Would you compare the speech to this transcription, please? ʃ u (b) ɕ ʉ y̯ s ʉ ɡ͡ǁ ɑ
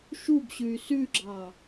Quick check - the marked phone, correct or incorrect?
correct